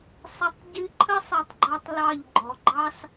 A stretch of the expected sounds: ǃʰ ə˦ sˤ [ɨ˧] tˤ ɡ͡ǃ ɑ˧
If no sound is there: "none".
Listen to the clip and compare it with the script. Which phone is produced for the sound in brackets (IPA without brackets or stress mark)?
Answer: ɛ˧